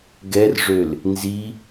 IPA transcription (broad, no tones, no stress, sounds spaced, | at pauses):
ɡ ɛ r ʐ ø l | n z i